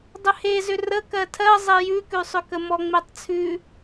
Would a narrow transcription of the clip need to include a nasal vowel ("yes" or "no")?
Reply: no